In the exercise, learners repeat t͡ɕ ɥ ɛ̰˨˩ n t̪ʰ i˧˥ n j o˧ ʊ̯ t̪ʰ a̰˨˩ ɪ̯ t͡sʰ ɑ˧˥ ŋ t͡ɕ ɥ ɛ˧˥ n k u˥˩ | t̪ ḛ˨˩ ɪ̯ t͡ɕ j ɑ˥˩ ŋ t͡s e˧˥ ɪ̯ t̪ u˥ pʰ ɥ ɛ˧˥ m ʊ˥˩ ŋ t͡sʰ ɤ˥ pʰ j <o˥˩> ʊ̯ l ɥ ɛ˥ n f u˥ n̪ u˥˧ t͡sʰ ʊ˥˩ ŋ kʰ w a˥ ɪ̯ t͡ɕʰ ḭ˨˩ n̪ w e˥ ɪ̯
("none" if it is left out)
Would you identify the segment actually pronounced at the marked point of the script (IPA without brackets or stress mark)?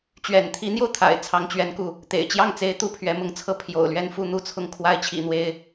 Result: o̰˨˩